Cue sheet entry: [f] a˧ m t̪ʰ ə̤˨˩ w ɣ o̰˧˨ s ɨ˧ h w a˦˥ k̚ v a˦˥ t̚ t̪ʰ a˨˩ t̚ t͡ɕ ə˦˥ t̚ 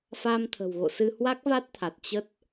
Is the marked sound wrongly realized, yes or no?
no